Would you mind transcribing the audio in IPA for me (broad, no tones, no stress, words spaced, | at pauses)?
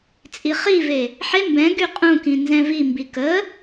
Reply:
t͡sʼiχive | ħe mbɛ̃ ɡyqʼũkĩ nzɛ̃vimbi kə